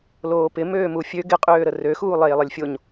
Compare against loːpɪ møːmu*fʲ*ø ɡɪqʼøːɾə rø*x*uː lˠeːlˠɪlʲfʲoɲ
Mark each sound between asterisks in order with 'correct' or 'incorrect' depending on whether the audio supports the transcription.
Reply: correct, correct

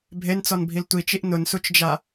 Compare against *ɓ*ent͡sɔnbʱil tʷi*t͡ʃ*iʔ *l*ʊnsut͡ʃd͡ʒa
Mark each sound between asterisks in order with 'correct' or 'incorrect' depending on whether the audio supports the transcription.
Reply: incorrect, correct, incorrect

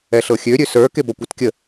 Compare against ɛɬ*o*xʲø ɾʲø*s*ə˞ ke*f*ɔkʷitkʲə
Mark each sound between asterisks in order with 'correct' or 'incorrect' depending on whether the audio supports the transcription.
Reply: incorrect, correct, incorrect

